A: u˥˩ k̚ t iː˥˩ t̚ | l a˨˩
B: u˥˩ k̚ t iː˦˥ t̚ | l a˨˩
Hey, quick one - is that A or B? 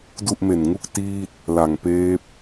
A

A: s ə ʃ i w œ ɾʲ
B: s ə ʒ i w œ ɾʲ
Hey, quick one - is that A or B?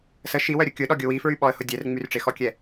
A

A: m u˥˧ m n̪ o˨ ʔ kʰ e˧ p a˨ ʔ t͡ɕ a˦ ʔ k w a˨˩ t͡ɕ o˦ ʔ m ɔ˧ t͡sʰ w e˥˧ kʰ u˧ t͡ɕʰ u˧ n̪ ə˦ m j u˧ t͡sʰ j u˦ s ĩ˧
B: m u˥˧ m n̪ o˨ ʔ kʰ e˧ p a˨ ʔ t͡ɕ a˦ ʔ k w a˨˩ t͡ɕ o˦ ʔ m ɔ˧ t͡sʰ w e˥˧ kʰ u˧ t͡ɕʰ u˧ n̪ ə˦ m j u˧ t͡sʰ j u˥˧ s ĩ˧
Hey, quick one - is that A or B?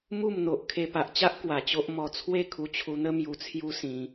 A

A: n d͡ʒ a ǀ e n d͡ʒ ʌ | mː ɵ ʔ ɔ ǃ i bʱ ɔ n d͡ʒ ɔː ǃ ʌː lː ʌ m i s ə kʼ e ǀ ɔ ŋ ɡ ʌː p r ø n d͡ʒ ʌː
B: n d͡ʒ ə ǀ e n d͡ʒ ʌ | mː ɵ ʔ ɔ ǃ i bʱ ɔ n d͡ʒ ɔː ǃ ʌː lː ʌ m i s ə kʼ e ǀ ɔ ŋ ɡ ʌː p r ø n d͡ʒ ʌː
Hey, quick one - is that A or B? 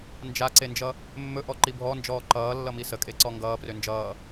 A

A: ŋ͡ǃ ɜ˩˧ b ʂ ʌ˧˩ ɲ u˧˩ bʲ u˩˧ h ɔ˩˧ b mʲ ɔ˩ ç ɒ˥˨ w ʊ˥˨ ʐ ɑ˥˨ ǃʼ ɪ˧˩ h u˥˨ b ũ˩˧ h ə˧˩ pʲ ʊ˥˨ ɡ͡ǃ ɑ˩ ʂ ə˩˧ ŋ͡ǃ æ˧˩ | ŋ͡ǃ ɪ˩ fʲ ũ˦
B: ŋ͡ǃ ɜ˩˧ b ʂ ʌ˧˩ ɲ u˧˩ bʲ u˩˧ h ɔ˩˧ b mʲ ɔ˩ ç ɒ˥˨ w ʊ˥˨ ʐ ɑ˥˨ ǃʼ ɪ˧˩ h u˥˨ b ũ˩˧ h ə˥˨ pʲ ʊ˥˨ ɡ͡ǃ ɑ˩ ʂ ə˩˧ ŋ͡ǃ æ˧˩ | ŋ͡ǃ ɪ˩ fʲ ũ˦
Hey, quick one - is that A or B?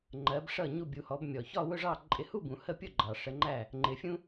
B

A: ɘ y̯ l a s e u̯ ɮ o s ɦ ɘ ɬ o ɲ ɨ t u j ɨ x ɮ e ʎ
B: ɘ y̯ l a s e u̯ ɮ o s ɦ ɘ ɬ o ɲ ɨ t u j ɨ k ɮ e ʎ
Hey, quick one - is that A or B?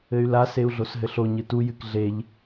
B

